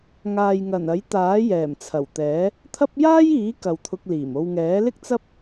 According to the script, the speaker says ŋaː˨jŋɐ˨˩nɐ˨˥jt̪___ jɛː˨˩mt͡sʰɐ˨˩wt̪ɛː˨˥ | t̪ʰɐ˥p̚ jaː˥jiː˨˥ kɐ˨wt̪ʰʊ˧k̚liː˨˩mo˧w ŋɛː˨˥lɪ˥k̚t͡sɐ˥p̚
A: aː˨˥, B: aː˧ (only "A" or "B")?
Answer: A